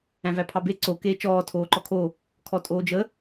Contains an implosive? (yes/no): no